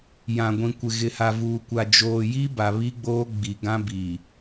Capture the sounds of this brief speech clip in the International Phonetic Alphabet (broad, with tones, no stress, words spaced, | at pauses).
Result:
jã˨ɡʷĩ˨kʷɪ˨ ɣɪ˨ha˨vuː˨kʷa˨ d͡ʒoː˨ji˦ ba˨βi˦ɡ͡boː˦ ɡ͡bi˨ɡã˦bi˨